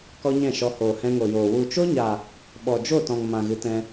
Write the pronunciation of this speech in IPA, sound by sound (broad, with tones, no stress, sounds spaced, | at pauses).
k ɔ˦ ɲ ɛ̃˦˨ ʃ ɔ˧ h oː˨ h ɛ̃˧ ŋ o˨ j oː˨ w u˨ t͡ʃ o˦ ɲ a˨ | ɓ ɔ˨ d͡ʒ o˦˨ t ɔ̃˨ ŋ m ã˨ ɣ ɨ˨˦ t ɛ̃˧